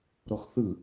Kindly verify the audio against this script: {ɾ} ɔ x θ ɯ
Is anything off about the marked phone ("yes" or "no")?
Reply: no